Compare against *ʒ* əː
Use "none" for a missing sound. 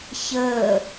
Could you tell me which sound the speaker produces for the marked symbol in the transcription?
ç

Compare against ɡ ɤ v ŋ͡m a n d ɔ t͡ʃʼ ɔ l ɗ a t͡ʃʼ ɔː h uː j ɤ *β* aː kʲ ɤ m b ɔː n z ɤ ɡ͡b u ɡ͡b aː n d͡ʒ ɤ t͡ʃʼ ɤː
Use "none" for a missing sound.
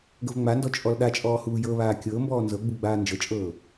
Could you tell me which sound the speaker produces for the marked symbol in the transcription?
β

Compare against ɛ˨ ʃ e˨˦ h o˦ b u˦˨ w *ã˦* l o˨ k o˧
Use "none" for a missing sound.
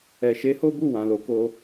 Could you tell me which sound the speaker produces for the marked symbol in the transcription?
ã˨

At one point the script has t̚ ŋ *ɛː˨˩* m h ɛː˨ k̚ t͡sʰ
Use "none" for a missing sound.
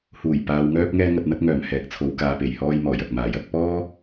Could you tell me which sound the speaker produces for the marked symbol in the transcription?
œː˨˩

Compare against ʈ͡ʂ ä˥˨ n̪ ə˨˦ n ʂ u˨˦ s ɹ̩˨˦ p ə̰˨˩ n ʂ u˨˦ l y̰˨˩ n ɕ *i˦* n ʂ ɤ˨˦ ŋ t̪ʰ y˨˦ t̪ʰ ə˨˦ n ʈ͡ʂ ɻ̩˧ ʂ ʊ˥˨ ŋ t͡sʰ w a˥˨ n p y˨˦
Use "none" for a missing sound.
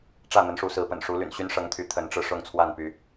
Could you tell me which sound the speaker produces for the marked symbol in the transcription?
y˦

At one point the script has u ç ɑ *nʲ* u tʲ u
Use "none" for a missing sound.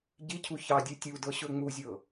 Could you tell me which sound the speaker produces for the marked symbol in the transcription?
dʲ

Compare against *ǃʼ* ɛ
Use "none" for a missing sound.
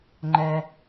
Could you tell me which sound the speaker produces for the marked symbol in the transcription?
ŋ͡ǃ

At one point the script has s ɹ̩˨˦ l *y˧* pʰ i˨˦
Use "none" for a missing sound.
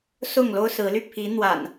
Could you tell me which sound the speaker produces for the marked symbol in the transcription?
y˧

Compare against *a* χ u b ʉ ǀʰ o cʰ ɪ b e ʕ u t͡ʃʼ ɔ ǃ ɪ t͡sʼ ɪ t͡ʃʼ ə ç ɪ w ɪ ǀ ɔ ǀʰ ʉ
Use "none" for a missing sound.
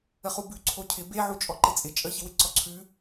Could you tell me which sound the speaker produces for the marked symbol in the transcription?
ə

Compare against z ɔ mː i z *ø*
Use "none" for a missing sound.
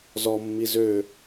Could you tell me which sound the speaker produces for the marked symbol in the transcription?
ø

